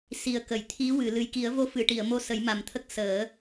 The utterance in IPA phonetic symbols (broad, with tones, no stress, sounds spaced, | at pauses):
s i˨˩ ə̯ k ə˨˩˨ j t̪ʰ i˧˥ w ɨ˨˩˨ l ɨ˨˩ j k i˨˩˦ ə̯ v o˧˥ f ɨ˨˩˨ ʈ i˨˩˨ ə̯ m o˧ s ə˨˩˦ j m a˨˩ m t̪ʰ ə˦˥ k̚ s əː˨˩˦